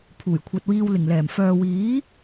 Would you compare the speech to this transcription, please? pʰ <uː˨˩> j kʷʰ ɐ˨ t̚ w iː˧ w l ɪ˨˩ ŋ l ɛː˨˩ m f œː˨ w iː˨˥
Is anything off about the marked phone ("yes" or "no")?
no